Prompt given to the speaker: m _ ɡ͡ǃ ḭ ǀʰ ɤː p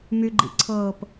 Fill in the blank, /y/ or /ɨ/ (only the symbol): y